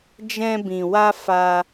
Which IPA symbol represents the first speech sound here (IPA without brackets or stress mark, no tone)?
d͡ʒ